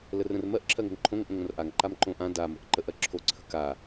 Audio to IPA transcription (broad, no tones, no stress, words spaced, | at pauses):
lərə̃r mɜʔǁʰɜŋə̤ŋ ǃʰõŋ ʔə̃ŋõrʔaŋ ǃamǃõʔã da mə̤ʔǃəʔɜǁʰo ǀʰə̤ka